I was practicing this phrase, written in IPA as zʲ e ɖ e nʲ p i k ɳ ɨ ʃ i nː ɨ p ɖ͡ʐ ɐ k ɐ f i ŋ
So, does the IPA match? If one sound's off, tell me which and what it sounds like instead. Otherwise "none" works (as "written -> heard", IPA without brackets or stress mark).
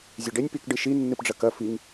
ɳ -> ɖ